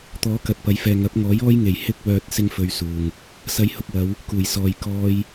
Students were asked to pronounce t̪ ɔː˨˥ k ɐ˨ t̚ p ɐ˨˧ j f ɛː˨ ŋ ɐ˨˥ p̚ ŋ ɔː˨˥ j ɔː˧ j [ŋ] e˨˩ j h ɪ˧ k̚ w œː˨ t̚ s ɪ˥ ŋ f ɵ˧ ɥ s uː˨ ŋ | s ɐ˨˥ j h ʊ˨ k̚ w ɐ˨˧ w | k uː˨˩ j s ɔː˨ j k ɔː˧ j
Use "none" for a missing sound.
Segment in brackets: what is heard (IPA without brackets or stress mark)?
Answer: ŋ